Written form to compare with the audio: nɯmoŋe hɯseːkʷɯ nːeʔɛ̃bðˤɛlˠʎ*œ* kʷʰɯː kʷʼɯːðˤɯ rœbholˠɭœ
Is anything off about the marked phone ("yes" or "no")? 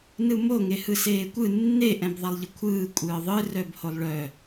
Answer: yes